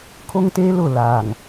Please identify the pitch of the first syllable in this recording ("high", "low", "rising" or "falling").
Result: high